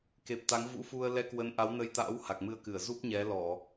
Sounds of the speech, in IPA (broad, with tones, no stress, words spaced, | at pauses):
ke˨˩p̚t̪a˨˦ŋ vṵ˧˥fu˧ə̯ lɛ˧kwə˨˦n ʔa˨˦wnə˧jt̪a̰ː˧˥w ha˨˩k̚mɨ˧ə̯kɨ˧˩ə̯ zu˦˥p̚ ɲɛ˨˦lɔ˧˩˨